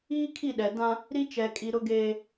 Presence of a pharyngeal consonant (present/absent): absent